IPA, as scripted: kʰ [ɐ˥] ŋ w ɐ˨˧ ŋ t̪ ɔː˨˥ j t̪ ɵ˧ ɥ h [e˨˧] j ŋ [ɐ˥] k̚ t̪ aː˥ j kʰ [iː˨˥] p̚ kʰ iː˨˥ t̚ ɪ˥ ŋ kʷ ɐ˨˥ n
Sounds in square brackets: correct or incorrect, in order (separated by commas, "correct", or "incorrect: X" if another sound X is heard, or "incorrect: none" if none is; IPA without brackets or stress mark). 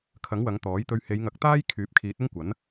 incorrect: ɐ˨˥, correct, incorrect: ɐ˨˥, incorrect: yː˨˥